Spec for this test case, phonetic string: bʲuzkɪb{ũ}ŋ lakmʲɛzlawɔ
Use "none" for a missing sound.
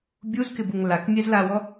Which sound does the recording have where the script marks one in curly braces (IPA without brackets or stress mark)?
u